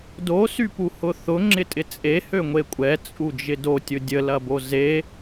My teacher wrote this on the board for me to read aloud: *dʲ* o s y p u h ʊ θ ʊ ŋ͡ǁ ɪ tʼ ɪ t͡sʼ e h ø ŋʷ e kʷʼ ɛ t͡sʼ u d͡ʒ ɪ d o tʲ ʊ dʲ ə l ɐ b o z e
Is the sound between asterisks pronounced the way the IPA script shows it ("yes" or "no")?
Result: no